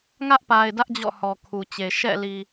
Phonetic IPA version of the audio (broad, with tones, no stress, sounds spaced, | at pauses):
ŋ ä˦ ʔ p a˨ ɪ̯ d ä˦ ʔ d͡ʑ ɔ̰˦˨ h ɔ˨ kʰ u˨ t͡ɕ e˨ ʃ ɛ̰˦˨ l i˨